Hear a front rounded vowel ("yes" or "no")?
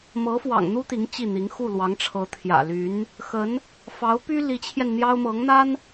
yes